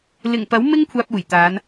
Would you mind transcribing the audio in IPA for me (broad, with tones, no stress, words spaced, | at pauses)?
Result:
lɪ˨˩ŋpɐ˨˥wmɪ˥ŋ kʷʰaː˧p̚uː˨˩jt̪aː˨˧n